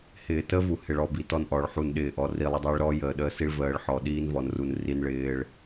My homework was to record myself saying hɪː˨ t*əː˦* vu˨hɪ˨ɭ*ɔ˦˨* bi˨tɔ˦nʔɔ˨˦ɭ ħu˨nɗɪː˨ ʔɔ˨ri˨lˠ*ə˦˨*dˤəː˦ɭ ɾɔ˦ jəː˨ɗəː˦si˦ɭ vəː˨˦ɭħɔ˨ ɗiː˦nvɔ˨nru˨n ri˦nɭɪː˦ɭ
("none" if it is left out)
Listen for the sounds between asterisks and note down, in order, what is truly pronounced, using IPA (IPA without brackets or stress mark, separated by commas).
ə˦, ɔ˦˨, ə˦